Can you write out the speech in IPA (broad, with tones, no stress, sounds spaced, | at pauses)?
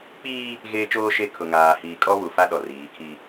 k͡p iː˦ | ɣ eː˦ t͡ʃ oː˦ ʃ e˦ kʰ ʊ˨ ŋ aː˨ h iː˨ kʼ ɔ˦ β u˨ f a˦ ɗ ɔ˨ r iː˨˦ kʰ i˦